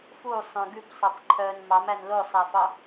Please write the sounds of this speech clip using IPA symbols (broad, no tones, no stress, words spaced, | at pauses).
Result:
fusˤœ̃ ɡʉpsˤœtˤǃʰœːn mɑmæn losˤæfɑ